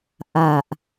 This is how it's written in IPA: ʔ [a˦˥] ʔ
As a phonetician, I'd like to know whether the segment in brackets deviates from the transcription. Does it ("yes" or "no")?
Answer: yes